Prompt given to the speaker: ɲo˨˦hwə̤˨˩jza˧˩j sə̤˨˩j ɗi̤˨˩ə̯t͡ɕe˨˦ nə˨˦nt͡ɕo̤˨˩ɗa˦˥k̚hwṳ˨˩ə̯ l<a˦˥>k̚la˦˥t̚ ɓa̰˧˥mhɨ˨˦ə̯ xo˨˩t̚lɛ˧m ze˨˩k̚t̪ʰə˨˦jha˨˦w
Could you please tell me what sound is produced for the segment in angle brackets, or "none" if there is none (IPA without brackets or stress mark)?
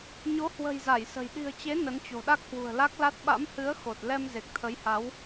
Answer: a˦˥